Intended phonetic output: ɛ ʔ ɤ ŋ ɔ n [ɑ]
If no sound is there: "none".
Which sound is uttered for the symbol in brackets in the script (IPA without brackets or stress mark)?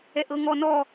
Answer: ɔ